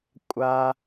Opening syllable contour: high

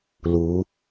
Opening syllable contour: rising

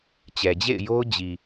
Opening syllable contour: low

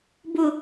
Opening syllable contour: low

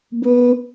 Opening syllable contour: high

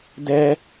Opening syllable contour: high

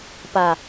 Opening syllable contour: low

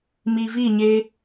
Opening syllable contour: low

